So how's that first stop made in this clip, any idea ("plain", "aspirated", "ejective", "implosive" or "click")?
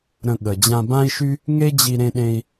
implosive